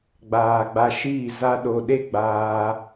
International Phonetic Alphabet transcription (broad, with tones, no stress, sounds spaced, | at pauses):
ɡ͡b aː˨ ɡ͡b a˧ ʃ iː˦˨ z a˧ ɗ o˨ ɗ e˦ ɡ͡b aː˧